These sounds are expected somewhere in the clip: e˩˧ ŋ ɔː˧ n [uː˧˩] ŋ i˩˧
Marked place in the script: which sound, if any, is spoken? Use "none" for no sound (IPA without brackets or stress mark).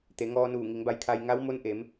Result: uː˧˩